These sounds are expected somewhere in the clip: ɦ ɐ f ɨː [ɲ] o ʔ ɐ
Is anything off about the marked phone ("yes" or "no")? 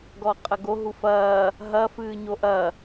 no